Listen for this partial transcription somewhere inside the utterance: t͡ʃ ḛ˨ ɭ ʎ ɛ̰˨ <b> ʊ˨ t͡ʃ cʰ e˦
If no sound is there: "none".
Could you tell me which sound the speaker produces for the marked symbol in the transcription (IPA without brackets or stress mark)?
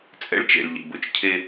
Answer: b